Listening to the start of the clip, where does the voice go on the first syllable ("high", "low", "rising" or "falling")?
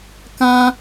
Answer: high